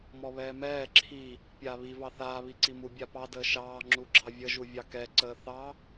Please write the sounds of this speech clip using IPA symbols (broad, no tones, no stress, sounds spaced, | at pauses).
m ɔ β ɛː m ɛː ǁʰ i | pʲ aː β i v ɑ θ aː β i ǀ i m u bʲ a p ɑ d əː ʃ ɑː ŋ͡ǁ u ɡ͡ǁ ɑ vʲ ə ʒ u vʲ ɑ k ɛ ǀ əː θ ɑ